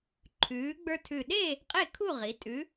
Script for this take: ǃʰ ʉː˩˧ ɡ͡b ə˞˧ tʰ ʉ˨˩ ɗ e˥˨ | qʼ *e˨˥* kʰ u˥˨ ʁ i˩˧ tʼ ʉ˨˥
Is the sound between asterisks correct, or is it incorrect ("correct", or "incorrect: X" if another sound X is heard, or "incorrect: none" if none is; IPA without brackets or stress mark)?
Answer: incorrect: e˥˨